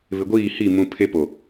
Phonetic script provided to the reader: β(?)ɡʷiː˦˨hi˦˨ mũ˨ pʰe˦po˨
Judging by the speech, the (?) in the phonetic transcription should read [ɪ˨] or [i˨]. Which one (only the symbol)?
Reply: ɪ˨